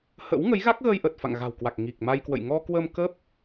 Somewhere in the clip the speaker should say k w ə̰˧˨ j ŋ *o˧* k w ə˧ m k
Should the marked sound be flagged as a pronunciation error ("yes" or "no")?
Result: yes